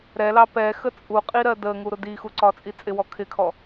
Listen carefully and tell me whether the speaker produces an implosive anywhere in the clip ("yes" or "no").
no